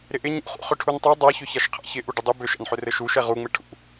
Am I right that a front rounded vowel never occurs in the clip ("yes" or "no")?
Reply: no